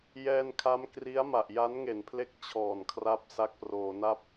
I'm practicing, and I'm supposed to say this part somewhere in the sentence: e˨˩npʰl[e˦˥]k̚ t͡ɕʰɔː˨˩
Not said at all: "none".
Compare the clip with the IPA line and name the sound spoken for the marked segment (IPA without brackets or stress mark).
e˦˥